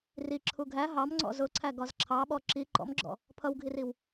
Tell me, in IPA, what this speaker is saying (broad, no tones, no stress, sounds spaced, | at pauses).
r i ǁʰ u ɡʱ æ ɦ ɑ m ŋ͡ǀ ɔ̰ z ʊ ǀʰ æ ɡ ɒ z ǁʰ ɑ ɓ ɔ ǁ i ǃ ɔ̰ m ɡ͡ǁ ɔ̰ | pʰ ʌ w ɡʱ i r i w